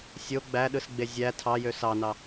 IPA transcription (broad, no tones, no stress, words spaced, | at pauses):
sʲo ɡ͡bæɗɯsɡ͡be zʲæ tʰɑjø sɑnɑ